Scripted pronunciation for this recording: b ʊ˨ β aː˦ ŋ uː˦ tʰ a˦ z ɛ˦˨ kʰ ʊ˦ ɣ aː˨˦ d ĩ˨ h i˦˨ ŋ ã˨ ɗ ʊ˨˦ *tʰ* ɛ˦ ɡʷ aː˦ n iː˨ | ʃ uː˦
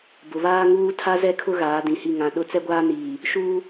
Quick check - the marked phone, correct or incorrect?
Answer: incorrect